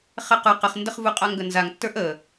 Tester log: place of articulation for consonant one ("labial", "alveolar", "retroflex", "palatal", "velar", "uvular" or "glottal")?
uvular